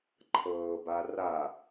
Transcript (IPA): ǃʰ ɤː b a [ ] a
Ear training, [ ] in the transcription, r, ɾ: r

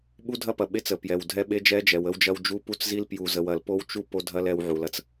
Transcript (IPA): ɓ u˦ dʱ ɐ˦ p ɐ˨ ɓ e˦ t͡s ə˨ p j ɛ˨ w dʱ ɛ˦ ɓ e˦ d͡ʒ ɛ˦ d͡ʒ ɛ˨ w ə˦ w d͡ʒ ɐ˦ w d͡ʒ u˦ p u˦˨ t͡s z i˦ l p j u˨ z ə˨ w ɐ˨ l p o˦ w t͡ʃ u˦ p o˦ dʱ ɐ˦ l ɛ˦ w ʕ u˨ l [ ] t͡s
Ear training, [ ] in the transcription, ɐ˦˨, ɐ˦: ɐ˦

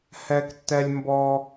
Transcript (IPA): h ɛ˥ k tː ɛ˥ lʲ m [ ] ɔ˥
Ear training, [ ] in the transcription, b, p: b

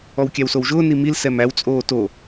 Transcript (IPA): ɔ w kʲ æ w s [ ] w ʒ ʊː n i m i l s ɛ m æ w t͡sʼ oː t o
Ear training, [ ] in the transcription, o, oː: o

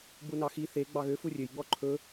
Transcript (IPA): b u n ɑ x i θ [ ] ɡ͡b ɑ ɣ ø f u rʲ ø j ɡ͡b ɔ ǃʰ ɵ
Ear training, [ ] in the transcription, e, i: e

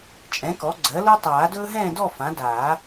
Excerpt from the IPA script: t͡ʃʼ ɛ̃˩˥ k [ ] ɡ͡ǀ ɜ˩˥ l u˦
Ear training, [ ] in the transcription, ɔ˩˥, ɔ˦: ɔ˩˥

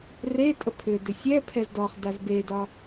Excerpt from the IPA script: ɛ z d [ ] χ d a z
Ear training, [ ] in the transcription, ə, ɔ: ɔ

